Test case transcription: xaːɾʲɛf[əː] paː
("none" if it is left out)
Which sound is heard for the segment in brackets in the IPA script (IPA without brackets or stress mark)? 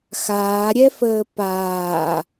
əː